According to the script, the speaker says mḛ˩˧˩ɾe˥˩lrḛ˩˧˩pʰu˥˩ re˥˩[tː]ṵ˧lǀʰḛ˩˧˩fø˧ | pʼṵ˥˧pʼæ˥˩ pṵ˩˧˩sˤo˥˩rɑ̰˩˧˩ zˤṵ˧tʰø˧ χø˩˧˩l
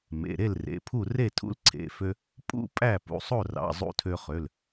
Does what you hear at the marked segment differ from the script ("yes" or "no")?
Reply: yes